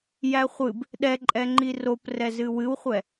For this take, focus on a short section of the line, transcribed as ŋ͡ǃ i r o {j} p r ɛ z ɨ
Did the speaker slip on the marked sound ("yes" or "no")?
yes